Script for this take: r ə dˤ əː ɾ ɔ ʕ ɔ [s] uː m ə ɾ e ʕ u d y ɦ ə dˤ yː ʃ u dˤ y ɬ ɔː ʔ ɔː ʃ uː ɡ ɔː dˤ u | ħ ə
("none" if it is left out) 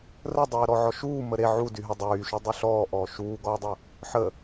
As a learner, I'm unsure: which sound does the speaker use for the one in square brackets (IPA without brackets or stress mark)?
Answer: ʃ